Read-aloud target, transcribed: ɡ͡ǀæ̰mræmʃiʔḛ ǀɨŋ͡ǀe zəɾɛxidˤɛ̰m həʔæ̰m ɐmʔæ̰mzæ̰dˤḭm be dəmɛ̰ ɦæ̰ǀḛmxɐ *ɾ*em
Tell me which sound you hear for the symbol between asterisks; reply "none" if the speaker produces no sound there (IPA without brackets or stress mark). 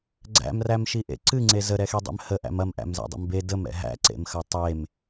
tˤ